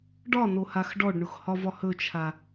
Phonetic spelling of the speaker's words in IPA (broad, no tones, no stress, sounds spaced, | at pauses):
ɖ ɒ n o h a x ɖ ɔ ɖ ɳ ʊ x h ɒ v ɒ h ɵ t͡ʃʰ a